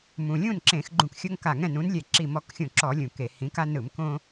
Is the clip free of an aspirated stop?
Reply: yes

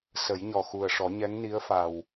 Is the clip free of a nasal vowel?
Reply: yes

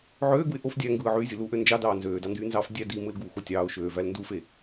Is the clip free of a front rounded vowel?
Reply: no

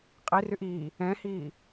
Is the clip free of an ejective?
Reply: no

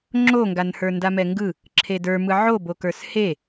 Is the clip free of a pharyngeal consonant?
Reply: no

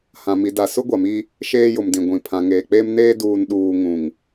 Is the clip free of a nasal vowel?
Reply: no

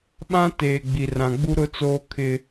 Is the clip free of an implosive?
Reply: no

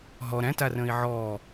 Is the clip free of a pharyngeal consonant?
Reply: no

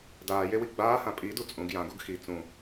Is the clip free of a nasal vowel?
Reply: no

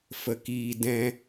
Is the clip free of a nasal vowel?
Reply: no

